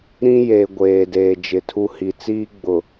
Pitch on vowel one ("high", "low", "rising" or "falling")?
high